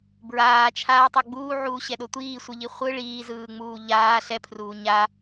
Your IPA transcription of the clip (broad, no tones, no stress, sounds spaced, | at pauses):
b ɹ aː t͡ʃʰ aː tˤ o ɡ͡b uː ʕ uː ɕ ɛ ɗ o tʷ iː sʷ ɯ ʎ i χʷ ɯ ɭ iː z ɯː ŋ͡m uː ʎ aː ɬ ɛ pʰ r uː ɲ a